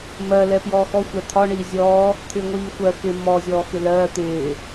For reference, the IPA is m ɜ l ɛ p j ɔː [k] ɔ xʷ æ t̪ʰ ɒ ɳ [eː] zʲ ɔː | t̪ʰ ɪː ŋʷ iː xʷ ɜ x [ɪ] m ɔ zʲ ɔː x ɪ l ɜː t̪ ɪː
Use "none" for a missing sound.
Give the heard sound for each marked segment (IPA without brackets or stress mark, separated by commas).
x, iː, ɪ